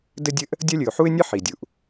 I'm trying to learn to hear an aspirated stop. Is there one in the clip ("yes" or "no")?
no